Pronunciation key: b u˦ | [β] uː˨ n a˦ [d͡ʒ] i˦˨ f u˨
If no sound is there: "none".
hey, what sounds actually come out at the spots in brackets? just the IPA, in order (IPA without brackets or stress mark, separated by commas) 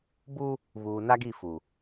β, ɡ